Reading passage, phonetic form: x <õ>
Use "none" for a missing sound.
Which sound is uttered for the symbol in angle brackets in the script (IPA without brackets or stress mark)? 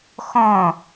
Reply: õ